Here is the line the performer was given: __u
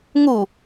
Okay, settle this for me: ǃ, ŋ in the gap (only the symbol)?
ŋ